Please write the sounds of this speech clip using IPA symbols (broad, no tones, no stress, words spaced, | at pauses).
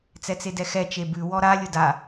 t͡sɛt͡sedɛxɛ t͡ʃebʉ wɔɾa lʲʊda